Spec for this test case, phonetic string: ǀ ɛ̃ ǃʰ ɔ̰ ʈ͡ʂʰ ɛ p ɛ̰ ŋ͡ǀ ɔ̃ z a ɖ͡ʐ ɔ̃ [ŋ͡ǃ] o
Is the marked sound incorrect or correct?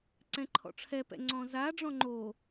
correct